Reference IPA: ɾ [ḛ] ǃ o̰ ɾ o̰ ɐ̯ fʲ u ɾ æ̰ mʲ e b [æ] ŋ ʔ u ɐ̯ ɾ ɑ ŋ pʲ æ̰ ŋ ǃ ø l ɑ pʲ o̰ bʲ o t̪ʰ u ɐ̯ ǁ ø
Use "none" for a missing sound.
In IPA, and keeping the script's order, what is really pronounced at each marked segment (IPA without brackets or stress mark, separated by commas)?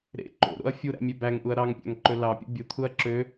ḛ, æ